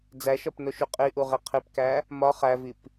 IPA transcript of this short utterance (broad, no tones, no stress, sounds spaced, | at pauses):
d͡z æ ʃ ɒ p n o ʃ u qʼ i ʔ u ʁ i qʰ i p k æ | m ɒ χ æ v i p